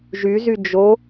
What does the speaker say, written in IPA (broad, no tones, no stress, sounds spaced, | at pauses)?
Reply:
ʒ y z y d͡ʒ o